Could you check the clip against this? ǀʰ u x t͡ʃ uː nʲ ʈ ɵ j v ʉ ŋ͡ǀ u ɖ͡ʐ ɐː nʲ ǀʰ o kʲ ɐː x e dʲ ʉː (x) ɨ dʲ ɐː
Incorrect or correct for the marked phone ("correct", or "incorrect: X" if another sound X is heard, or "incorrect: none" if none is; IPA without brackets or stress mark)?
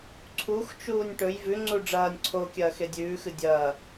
correct